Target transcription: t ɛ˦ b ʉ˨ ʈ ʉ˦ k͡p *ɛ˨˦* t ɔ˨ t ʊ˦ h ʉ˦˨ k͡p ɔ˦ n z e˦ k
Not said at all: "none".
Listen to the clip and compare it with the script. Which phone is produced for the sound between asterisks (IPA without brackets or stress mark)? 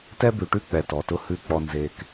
ɛ˨